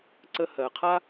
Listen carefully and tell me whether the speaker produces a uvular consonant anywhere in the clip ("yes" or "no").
yes